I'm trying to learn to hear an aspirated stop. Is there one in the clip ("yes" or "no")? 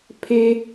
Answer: yes